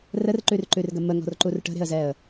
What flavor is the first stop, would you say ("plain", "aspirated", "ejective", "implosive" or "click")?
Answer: click